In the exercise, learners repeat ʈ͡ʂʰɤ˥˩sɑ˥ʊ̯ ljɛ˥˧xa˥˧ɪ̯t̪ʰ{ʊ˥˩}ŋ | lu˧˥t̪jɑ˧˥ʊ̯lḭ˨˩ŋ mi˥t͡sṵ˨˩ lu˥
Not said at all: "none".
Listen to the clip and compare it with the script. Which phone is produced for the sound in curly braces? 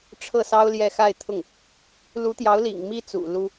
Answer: ʊ˥˩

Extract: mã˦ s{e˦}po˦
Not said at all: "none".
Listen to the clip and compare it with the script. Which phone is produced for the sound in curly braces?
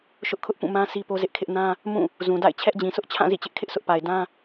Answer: i˦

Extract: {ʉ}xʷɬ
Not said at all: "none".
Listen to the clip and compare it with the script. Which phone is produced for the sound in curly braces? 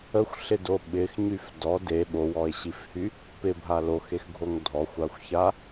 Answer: ə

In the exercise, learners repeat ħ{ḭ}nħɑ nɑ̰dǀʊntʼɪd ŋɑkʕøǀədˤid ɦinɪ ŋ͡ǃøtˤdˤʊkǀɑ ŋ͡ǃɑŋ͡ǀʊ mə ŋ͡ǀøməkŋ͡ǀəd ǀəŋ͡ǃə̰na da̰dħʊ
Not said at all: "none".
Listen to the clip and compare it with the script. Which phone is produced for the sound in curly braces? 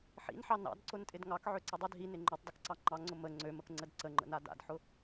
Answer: ḭ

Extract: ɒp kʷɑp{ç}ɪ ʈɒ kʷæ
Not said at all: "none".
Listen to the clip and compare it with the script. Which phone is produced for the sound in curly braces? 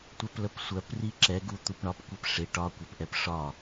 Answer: ʂ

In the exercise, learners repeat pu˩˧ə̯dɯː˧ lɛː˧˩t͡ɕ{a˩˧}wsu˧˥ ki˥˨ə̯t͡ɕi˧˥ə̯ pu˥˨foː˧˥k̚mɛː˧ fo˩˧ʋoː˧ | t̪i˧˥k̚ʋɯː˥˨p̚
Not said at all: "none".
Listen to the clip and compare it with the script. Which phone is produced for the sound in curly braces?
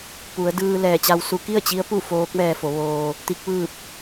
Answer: a˧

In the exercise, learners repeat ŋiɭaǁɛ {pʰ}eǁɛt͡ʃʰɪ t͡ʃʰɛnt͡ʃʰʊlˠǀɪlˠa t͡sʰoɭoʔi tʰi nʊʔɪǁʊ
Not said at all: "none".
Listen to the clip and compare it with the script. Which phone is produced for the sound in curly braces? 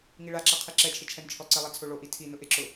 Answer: qʰ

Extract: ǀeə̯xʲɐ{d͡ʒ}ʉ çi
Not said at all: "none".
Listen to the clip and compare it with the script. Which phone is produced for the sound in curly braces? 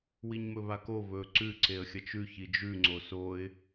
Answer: t͡ʃ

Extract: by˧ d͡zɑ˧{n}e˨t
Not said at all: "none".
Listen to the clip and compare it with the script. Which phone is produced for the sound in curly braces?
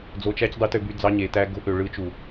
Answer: ɲ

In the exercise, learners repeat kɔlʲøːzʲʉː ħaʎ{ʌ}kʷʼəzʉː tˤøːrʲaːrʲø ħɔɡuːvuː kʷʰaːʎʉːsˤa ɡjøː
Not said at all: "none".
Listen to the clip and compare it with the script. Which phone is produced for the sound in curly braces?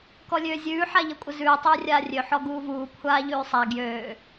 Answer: ʌ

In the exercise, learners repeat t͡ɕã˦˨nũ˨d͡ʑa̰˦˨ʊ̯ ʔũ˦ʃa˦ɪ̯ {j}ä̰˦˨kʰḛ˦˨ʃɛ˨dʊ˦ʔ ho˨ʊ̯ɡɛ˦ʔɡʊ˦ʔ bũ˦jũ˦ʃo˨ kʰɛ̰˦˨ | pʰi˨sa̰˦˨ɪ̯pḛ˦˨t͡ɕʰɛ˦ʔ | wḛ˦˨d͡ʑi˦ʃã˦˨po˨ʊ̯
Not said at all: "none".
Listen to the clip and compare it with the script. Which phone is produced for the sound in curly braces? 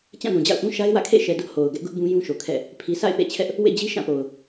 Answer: w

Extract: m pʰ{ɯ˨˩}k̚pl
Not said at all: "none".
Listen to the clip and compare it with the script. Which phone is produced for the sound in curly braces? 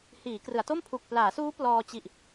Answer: u˨˩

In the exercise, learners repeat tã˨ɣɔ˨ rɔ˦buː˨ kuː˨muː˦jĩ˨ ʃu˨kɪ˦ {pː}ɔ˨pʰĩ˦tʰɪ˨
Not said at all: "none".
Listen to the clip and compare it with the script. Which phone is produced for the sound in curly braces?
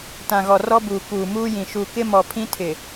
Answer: m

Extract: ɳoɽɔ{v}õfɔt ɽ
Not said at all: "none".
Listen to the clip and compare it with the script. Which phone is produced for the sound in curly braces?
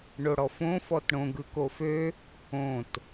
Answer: f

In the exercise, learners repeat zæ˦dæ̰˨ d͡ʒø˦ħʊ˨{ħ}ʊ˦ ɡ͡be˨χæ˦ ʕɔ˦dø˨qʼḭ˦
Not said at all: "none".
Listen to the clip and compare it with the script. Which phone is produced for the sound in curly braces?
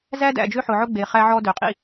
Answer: ʕ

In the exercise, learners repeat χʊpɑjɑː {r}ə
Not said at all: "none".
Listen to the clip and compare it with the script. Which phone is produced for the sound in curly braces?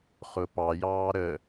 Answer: ɾ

